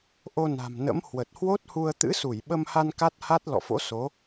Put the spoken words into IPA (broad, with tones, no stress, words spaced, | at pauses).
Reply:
ʔo˧na̤˨˩mnə̰˧˥m hwə˨˩t̚hwo˦˥t̚hu˧ə̯ t̪ɨ̰˧˥su˧˩jɓə˧mha˧n ka˦˥t̚ha˦˥t̚ lɔ̰˧˨fo̰˧˥ so˨˦